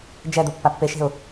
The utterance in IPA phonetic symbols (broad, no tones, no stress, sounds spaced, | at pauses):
d͡ʒ ɛ d̪ o pː a pː e ʃ e̤ ʊ̯